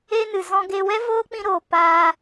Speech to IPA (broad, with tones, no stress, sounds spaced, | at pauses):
e˦ n ɨ˨ z ɔ̃˧ ɡ e˧ w ɛ˦ v oː˦ k͡p ĩ˧ ɾ oː˨ p aː˧